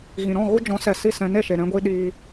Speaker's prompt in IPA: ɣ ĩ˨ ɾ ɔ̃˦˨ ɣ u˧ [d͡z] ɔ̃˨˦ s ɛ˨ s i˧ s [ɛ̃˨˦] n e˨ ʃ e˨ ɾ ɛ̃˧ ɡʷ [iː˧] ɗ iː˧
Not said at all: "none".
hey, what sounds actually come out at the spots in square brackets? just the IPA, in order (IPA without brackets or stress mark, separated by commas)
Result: d͡ʒ, ɛ̃˨˦, i˧